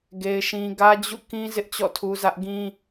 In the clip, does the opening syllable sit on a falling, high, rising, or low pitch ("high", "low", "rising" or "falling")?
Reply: high